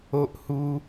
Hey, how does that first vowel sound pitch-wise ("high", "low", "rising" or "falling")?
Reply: high